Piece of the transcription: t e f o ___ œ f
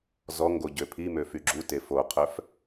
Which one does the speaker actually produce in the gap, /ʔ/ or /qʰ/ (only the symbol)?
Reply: qʰ